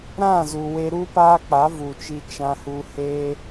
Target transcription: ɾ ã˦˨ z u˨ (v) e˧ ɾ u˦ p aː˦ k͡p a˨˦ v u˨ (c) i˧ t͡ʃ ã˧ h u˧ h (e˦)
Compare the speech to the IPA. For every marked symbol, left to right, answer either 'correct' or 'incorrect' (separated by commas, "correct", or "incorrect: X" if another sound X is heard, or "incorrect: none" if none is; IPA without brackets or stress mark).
incorrect: w, incorrect: t͡ʃ, correct